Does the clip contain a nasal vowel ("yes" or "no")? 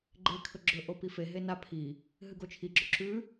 no